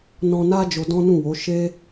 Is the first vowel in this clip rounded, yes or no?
yes